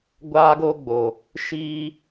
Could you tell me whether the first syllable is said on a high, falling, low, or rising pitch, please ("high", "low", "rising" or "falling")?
high